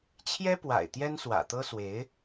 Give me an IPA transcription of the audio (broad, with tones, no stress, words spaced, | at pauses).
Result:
t͡ɕʰjɛ˥pwa̰˨˩ɪ̯ t̪jɛ˥nswä̰˨˩ t̪ɤ˥swe˧˥ɪ̯